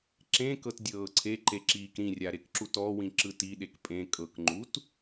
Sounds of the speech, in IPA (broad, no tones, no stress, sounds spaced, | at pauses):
ǁ ẽ k ɤ t dʲ ɤː ǀʰ e ǃ e ǁ iː k ɾ ĩ rʲ a ɾ e k ǁ u t ɔ w ĩ ǁ ɯ t i ɗ e k pʼ ẽ kʼ ɤ k ŋ͡ǃ u t